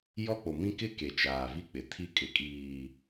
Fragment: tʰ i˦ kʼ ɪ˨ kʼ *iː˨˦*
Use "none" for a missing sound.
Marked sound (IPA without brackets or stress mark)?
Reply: iː˨